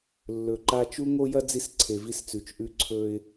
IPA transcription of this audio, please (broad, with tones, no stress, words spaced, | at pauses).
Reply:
lːɵ˨ǃa˦ t͡ʃu˦ŋo˦jɐ˦ d͡zi˦sǀʰe˨vi˦st͡sʉ˨t͡ʃ ʔʉ˦ǀʰɵ˦ɪ̯